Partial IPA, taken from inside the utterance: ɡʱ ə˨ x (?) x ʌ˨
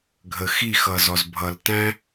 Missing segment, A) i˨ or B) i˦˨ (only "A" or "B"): B